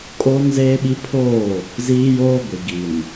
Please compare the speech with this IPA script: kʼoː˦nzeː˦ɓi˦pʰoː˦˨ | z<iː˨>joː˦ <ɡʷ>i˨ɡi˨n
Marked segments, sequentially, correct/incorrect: incorrect, correct

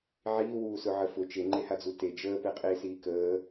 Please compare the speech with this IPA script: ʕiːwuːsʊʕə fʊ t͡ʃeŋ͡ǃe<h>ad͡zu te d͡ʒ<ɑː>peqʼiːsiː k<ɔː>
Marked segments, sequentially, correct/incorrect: correct, incorrect, incorrect

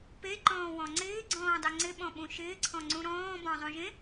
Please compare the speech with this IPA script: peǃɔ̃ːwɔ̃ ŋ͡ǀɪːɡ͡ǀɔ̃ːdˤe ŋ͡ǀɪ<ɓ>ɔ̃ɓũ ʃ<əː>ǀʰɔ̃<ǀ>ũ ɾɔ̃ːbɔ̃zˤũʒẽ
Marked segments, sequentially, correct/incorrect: correct, incorrect, incorrect

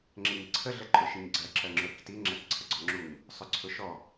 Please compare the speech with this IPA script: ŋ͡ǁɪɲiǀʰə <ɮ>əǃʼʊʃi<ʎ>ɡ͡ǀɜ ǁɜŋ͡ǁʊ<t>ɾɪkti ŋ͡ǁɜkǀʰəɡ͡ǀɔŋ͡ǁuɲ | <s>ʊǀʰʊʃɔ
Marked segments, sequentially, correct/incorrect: correct, incorrect, incorrect, incorrect

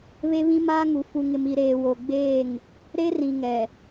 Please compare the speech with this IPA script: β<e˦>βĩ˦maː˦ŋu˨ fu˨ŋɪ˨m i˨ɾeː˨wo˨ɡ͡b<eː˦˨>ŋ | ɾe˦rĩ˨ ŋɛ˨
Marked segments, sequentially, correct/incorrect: correct, correct

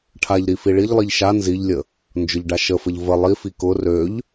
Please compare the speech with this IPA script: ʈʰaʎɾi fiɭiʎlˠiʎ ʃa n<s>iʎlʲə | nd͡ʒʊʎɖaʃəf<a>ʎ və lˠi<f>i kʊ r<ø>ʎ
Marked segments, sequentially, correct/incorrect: incorrect, incorrect, correct, correct

